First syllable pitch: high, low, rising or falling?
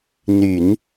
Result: low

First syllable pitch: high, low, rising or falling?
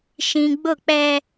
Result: low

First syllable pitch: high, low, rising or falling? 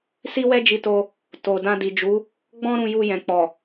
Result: high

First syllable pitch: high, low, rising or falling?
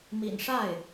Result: low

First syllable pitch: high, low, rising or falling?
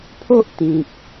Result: high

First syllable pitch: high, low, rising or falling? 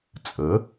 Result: rising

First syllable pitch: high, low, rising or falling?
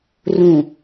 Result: low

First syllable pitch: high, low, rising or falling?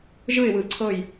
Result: falling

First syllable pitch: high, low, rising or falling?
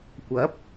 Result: rising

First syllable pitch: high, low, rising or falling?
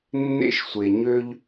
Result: rising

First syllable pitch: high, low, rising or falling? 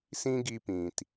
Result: high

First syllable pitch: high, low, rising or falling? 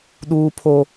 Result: high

